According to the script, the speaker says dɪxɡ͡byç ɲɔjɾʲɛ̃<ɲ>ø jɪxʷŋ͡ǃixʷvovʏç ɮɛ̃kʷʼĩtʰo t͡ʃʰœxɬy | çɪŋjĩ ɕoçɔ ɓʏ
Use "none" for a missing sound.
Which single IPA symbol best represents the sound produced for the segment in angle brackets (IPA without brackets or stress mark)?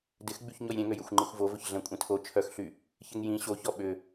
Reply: ŋ